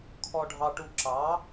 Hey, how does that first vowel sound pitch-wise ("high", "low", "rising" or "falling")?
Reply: high